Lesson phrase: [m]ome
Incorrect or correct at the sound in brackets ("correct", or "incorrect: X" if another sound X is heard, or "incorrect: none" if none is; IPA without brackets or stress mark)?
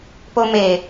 incorrect: p